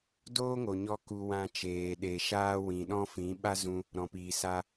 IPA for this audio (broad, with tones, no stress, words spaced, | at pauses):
doː˦ŋo˨ɲɔ˧ ku˧wã˧t͡ʃeː˨ ɗe˨ʃaː˦ wĩ˨ɗɔ̃˦fĩ˨˦ ɓa˦zũ˧ | ɾɔ̃˨piː˨sa˦